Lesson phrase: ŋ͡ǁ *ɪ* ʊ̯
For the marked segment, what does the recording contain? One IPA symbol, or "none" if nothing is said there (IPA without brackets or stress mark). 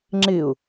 ɪ